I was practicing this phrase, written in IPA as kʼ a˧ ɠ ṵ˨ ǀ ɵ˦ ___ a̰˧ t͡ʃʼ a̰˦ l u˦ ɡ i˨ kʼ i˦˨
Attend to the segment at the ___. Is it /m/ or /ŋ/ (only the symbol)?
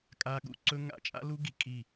ŋ